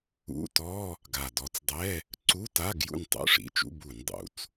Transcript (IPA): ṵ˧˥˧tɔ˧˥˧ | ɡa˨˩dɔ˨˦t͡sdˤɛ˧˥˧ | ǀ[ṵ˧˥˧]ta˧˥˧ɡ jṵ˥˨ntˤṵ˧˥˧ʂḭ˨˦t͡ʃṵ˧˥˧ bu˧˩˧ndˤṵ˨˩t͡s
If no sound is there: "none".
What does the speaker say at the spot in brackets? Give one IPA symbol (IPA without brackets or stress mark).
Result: u˧˥˧